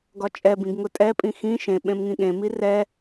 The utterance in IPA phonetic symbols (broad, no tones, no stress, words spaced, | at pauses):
ɡɒt͡ʃʼɛbĩɡ ŋʊtʼɛpʼĩ xĩ ʃẽ ɓẽmŋĩɠẽmi rɛ